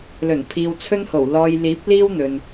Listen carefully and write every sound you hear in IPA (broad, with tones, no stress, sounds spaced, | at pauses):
l ɵ˨˩ n pʰ iː˨ w t͡sʰ ɵ˥ n h o˨˩ w l ɔː˨ j l iː˨˥ p̚ l iː˥ w n̪ ɵ˨ n